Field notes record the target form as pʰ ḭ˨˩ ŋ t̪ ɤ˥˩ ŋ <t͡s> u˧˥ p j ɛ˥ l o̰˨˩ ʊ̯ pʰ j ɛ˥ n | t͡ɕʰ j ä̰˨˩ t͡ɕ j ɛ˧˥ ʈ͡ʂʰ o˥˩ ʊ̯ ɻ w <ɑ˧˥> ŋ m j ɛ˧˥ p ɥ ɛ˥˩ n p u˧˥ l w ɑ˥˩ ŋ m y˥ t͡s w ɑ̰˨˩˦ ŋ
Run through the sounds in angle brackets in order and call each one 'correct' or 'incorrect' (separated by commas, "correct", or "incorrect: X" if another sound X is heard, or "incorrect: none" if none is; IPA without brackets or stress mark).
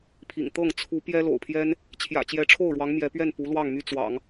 incorrect: t͡sʰ, correct